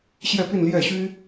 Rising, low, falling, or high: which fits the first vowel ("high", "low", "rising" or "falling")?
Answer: falling